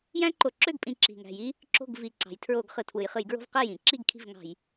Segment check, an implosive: absent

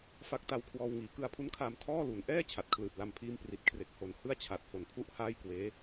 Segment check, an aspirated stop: present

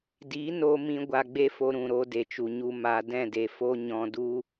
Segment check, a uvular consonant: absent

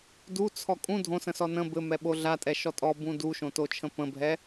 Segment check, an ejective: present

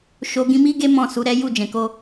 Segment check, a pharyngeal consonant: absent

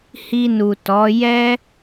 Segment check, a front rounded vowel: absent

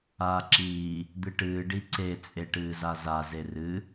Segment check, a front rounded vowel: absent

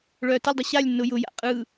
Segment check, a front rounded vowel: present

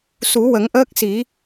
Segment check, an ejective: absent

